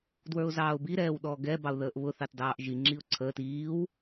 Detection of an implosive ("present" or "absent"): present